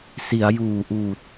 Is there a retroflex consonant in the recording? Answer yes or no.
no